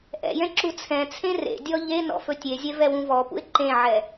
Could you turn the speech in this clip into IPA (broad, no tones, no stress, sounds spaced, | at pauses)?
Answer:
ʔ ɛ̰ j ɛ̃ ǁ u t͡sʰ ɛ̃ t͡sʰ ẽ r ḛ dʲ ɔ ʎ e n ɔ̰ f ɵ tʲ e zʲ ɛ v ɛ w ũ v ɔ p ṵ ɪ̯ ǃ ẽ ʕ ɛ